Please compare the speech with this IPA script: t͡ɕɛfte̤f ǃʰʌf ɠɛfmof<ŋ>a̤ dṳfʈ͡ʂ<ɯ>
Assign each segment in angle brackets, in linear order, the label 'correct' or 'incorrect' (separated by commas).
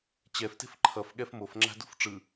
incorrect, correct